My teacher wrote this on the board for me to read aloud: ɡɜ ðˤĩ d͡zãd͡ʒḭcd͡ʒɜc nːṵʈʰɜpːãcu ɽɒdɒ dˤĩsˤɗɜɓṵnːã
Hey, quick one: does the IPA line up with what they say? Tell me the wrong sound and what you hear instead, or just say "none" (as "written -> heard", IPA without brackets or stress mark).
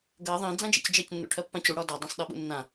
none